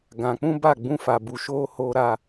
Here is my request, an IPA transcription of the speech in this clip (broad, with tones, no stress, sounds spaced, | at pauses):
ɡ ã˨ k͡p ũ˦ b a˦˨ ɡ͡b ũ˦ f a˨ b u˨ ʃ oː˦ h oː˦ ɾ a˦